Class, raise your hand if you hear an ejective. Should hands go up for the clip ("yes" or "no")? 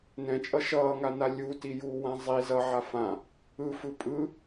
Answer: yes